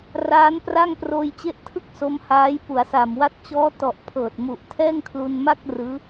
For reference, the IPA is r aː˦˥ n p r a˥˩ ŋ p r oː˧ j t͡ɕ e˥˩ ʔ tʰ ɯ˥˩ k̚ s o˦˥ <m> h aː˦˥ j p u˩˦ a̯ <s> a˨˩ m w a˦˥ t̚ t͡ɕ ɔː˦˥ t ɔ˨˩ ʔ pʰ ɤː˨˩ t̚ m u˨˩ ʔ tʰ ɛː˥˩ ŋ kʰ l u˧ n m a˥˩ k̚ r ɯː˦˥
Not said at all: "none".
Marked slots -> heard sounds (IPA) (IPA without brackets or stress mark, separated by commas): m, s